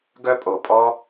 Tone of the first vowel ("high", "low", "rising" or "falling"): high